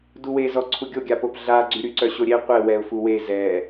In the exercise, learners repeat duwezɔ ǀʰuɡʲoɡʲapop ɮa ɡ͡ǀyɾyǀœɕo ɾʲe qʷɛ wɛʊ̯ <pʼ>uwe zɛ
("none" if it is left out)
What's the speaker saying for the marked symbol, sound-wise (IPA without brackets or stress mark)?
f